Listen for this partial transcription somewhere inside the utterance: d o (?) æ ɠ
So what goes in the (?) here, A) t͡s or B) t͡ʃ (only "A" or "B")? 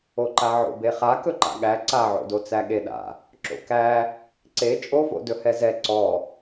A